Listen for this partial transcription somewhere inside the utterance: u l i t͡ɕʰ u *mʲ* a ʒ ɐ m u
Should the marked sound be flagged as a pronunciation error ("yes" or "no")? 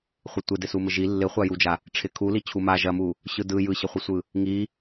yes